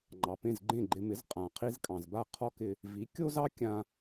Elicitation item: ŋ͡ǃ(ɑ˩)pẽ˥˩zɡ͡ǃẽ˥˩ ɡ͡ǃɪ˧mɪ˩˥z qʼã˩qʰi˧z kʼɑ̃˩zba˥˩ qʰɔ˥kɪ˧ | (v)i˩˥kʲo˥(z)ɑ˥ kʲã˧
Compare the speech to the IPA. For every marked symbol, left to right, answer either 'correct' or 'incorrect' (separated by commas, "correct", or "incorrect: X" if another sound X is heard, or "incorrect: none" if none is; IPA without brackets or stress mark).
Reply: correct, correct, correct